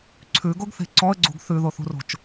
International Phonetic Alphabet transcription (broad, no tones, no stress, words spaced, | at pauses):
ǀʰʉɡoɡθe̤ ǀɔə̯ɡ͡ǀṳɡ θʉðoθṳro̤t͡ʃ